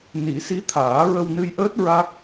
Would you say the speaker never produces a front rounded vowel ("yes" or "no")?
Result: yes